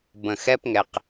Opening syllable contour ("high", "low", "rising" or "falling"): low